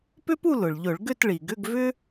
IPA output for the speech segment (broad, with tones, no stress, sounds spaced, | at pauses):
p ʏ˥ p u˥˧ l ʊ˩ ɭ ʎ ʊ˧˩˧ ɭ ɡ ʏ˥˧ t ɭ i˩ ɡ ʏ˧˥˧ ɡ v ʏ˥